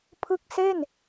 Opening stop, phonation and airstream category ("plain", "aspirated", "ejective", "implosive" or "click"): aspirated